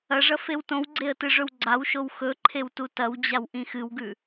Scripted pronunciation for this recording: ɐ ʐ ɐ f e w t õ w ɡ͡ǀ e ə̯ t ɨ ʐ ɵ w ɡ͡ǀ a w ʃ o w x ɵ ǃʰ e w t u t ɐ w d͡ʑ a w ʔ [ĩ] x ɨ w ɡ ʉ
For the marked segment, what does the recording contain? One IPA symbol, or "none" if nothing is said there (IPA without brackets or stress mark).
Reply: ĩ